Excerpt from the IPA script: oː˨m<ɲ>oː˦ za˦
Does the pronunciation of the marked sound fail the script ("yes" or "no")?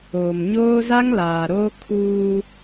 no